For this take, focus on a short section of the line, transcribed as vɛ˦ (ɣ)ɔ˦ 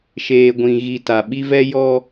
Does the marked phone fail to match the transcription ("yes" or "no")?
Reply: yes